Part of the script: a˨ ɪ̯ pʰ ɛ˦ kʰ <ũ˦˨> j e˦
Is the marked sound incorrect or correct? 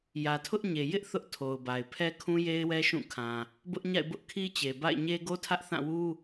incorrect